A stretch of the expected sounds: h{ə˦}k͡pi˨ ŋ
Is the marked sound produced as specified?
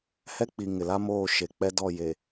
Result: no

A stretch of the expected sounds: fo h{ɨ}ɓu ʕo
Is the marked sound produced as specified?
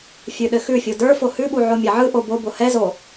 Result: no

